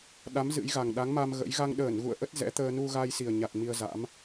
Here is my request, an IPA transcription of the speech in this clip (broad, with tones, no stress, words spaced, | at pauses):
ɗa˨˦m zɨ̰˧˥jɣa˨˩ŋ ɗa˨˦ŋma˧m ɣə̰˧˥j ɣa˧ŋɗəː˧˩nɣṵ˧˨ə̯ʔə˦˥t̚ zɛ̰˧˥t̪əː˧ nu˧ɣa˧j si˨˩ə̯ɲa˨˩t̚ mi˧ə̯za̰˧˥m